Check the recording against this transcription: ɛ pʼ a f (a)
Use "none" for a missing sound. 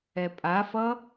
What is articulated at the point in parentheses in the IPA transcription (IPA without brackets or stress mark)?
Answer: ʌ